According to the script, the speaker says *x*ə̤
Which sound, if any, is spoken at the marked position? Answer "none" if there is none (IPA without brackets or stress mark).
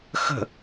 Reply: x